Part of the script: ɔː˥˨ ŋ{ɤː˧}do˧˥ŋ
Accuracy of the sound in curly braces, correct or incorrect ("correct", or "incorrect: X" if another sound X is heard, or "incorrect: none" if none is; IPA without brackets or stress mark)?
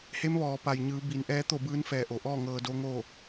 correct